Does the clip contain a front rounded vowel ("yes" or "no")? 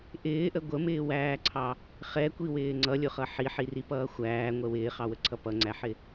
no